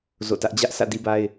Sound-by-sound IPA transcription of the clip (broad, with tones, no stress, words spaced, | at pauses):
zo̰˦˨tä˦ʔ d͡ʑä˦ʔsä̰˦˨ di˦ba˦ɪ̯